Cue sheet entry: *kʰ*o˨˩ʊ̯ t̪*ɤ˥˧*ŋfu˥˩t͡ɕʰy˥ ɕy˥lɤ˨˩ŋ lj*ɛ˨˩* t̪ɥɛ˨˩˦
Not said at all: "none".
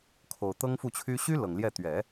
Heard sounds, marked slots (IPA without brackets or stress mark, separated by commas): kʰ, ɤ˥, ɛ˥˩